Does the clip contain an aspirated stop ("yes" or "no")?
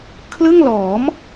yes